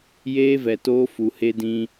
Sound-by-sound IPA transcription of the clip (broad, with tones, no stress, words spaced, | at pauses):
jeː˦vɛ˨toː˦ fu˨he˦dĩ˦